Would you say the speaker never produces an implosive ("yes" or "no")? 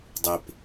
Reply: yes